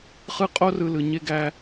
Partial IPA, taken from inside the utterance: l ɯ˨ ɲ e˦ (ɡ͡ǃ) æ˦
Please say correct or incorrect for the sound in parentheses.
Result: incorrect